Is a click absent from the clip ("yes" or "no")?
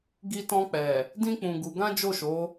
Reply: yes